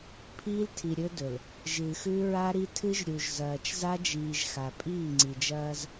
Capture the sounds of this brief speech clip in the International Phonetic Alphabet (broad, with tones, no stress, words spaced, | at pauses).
pʰiː˦ltʰi˨ ɾʲɵ˦dɵ˨l | ʒɨː˨xʉ˦ɹa˦ɾi˦ tʰɨ˦ʒɾʲu˨ʒ zɐː˨t͡ʃza˦d͡ʒiː˨ʒ xa˨pʼiː˦˨ŋ͡ǀi˨d͡ʒɐː˦z